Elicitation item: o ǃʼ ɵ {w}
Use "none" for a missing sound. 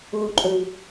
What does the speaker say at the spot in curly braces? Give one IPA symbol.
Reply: w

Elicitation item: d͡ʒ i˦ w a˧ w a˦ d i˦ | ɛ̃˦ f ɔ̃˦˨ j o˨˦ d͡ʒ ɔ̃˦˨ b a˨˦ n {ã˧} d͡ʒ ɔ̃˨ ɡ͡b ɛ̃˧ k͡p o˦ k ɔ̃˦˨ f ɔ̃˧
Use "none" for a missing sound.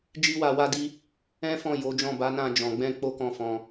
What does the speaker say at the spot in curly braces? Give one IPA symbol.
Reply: ã˧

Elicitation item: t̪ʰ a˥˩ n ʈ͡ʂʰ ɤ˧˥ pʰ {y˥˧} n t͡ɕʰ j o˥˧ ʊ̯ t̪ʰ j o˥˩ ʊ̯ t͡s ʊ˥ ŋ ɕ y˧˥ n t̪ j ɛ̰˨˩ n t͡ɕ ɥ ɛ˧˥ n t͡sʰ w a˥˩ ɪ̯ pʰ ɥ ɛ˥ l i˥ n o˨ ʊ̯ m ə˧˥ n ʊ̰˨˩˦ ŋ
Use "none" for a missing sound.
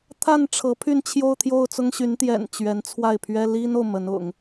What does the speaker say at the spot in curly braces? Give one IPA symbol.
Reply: y˥˧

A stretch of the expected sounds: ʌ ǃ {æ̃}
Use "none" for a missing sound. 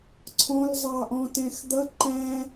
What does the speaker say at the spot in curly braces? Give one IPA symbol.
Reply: æ̃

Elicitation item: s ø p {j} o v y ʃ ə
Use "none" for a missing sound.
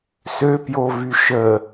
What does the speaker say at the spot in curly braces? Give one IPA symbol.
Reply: j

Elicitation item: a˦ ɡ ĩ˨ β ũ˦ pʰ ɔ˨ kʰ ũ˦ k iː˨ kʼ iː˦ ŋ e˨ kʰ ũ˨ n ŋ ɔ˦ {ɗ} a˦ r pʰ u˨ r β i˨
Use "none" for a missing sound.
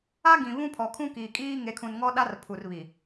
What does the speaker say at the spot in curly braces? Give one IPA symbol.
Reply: ɗ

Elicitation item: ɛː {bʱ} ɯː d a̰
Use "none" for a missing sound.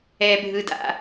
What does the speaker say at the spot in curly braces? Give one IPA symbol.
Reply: bʱ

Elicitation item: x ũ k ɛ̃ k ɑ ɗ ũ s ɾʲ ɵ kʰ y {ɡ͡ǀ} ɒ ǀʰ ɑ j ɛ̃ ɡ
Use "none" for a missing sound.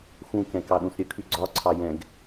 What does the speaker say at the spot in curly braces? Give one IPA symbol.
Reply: ɡ͡ǀ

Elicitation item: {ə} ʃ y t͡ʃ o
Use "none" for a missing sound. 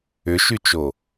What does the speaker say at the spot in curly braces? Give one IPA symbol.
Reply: ʏ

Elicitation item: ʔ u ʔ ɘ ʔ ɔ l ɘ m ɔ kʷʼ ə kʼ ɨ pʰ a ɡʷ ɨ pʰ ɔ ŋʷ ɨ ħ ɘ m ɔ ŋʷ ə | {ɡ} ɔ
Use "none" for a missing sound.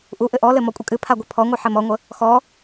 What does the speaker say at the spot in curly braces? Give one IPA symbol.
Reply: x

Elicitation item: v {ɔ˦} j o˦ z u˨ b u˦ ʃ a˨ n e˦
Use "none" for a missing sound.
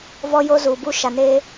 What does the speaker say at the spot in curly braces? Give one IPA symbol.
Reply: ɔ˦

